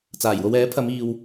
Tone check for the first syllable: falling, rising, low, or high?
low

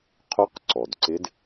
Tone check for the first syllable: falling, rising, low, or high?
rising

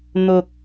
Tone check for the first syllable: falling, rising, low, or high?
low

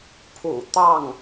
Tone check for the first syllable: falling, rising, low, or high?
low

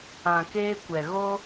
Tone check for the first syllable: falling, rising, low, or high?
low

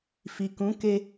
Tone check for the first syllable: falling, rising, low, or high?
low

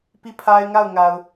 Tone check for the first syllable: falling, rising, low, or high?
falling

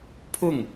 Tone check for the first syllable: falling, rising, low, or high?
falling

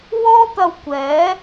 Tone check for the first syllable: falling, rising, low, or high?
high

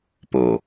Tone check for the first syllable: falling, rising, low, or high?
low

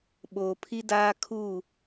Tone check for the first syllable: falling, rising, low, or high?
low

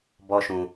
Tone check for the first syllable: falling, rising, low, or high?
high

